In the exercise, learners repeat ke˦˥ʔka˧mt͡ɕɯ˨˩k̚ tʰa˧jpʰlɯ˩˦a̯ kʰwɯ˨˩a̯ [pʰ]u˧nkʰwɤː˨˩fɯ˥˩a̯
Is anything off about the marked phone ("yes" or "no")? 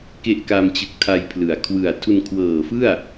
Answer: yes